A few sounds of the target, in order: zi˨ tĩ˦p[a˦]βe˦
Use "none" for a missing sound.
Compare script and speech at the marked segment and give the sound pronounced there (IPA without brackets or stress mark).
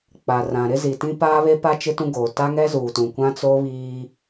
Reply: aː˦